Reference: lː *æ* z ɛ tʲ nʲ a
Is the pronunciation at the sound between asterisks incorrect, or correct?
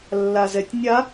incorrect: a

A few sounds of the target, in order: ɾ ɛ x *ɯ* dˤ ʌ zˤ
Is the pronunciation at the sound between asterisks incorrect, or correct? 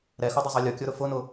incorrect: u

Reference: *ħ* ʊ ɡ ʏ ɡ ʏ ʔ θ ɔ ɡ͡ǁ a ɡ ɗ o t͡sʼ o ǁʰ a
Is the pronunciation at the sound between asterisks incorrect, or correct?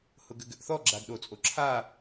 incorrect: h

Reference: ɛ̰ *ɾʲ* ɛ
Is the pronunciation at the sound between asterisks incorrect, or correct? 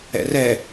incorrect: r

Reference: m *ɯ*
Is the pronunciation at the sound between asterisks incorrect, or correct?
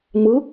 correct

